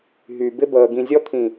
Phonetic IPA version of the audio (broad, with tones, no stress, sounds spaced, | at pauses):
ɦ y˨ b ɪ˧ b əː˨ ɡ ĩ˨ zʲ ɔ˧ t̪ʰ ĩ˨